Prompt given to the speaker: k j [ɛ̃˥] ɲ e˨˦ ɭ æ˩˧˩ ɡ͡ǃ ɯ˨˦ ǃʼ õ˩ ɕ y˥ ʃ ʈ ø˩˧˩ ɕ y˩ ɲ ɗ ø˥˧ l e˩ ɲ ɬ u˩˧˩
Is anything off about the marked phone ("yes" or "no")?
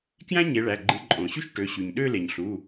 yes